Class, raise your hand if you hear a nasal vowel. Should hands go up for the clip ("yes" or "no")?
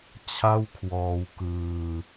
no